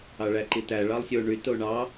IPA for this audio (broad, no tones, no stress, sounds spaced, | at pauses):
ɑ ɭ æ ǃ i t æ ɭ ɑ lˠ sʲ o ɳ y t o ɳ ɑ